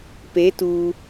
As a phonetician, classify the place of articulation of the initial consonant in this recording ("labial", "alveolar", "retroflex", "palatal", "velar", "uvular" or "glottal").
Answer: labial